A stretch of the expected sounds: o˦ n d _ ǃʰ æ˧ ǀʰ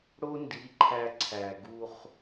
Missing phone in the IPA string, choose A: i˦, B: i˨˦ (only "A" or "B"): B